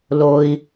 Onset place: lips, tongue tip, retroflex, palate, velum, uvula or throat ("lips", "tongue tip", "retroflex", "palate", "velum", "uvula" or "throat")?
tongue tip